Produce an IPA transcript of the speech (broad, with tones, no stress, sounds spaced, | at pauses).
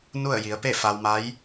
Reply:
n u˥˨ ə̯ j i˩˧ ə̯ p e˥˨ f a˧ w m a˧˥ j